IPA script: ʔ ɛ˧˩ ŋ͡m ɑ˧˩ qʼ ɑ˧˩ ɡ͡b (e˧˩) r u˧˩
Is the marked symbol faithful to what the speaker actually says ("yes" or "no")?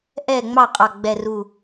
no